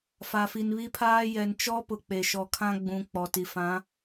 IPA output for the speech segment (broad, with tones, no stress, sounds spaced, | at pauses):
f a˨ f i˨ n β i˦ pʰ aː˦ j ɛ˨ n t͡ʃ ɔ˦ p ʊ˨ k͡p e˨ ʃ ɔ˨ kʰ ã˦ ɡ͡b ũ˨ k͡p ɔ˨ t i˨ f ã˨˦